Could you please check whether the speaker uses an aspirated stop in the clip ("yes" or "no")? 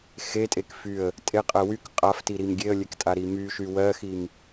no